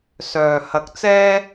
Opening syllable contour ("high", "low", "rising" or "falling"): low